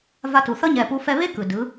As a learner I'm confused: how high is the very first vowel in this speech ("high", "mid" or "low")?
low